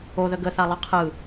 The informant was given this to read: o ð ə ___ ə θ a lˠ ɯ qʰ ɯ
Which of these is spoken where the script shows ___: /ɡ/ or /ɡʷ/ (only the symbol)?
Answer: ɡ